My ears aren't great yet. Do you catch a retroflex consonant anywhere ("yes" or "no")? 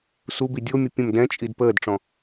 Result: yes